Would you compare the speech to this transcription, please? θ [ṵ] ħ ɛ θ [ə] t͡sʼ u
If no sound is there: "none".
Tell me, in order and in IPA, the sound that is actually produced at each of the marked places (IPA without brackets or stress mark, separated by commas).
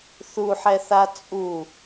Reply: u, a